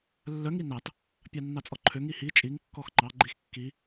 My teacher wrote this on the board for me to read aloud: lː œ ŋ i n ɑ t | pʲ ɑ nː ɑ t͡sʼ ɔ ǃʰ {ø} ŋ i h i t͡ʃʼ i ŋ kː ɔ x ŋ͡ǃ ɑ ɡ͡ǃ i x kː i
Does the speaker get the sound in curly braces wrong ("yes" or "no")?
no